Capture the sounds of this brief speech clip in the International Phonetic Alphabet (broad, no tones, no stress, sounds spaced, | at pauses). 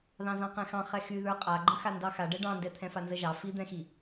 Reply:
ð ɑ̃ z ɑ̃ q ɛ̃ x ɑ̃ χ ɛ x y ð ə˞ qʼ a ɡ͡ǃ ə̃ x a n d ɑ x a ɖ ɛ ɖ ɑ̃ n d ɛ t̪ʰ ɛ̃ f a n z ə ʒ ɑ f i d̪ ɛ̃ x i